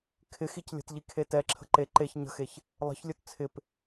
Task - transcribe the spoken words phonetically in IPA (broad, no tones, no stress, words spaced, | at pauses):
kʰɪxic lʲə̤tʎi kʰetɛǁʰə̤ ǃe ǃeç ɲə̤xeç | lˠə̤çlʲɵt t͡sʰɪp